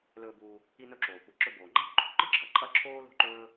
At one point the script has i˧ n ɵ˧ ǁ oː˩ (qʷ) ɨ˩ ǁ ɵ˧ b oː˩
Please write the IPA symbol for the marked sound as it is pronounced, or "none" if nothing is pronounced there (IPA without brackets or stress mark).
kʷ